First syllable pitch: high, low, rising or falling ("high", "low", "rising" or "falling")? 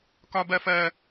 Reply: high